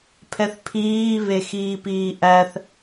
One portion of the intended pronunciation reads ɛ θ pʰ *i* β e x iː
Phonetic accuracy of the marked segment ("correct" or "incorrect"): incorrect